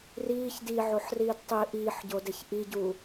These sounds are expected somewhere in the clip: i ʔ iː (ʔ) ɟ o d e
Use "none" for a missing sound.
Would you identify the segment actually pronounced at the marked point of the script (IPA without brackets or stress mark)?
ħ